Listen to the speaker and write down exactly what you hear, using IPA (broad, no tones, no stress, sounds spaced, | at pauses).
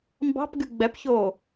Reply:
m b ɑ̤ p ɡ y ɡ͡b ɛ p ç oː